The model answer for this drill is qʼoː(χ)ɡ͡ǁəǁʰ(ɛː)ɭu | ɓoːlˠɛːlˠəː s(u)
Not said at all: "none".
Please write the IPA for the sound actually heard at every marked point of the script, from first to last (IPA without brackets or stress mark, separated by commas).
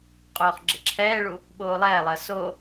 χ, ɛː, o